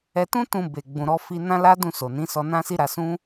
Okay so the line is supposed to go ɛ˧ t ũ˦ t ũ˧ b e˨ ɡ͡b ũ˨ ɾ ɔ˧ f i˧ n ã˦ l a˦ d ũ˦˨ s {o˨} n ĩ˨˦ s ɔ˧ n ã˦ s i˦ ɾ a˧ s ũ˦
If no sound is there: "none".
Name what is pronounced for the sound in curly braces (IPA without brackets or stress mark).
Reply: o˨